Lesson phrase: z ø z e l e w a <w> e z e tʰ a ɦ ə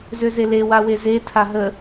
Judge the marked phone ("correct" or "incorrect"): correct